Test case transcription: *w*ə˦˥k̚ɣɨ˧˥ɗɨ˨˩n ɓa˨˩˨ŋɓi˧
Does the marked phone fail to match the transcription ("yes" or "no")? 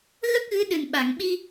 yes